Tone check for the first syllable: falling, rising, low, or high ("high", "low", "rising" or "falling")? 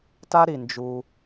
high